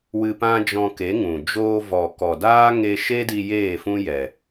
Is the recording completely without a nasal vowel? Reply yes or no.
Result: no